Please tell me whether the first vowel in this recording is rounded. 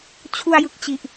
yes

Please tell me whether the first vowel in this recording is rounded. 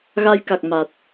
no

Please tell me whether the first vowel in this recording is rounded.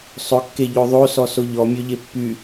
yes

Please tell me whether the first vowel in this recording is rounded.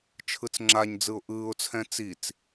no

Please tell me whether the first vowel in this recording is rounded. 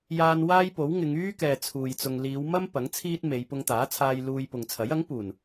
no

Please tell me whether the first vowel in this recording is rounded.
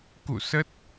yes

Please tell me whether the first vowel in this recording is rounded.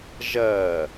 no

